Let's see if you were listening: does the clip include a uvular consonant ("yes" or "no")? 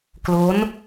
no